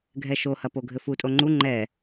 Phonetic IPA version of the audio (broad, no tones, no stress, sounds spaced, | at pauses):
ɡʱ ɛ ʃ o h ɐ p o ɡʱ ɘ f u tʼ o ŋ͡ǃ u ŋ͡ǃ ɛ